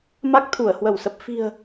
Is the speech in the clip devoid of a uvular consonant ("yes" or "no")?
yes